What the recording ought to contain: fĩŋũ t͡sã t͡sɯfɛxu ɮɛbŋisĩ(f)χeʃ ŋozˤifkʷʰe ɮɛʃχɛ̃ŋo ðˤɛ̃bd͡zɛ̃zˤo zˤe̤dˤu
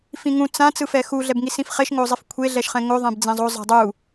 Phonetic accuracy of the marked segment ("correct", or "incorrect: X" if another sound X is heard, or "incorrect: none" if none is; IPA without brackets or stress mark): correct